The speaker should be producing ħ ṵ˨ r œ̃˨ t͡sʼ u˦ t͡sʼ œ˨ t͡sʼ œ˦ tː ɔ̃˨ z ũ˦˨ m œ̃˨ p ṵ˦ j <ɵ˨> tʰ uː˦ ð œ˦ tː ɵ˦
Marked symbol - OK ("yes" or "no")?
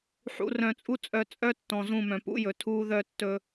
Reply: yes